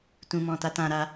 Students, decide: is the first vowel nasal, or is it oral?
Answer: nasal